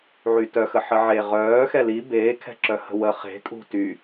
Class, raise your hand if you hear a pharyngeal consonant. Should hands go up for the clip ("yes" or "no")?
yes